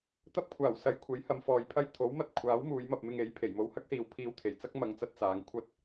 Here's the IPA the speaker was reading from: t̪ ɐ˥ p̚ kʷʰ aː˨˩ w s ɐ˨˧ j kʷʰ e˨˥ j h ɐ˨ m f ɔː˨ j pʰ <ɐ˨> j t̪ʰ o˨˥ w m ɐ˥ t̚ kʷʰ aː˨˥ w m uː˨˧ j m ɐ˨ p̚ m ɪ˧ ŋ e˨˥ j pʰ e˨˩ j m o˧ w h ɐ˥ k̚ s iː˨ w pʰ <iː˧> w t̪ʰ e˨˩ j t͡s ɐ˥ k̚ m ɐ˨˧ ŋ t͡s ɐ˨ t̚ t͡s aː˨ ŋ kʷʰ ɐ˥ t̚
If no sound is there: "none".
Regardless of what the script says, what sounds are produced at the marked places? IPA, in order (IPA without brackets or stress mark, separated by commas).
ɐ˥, iː˧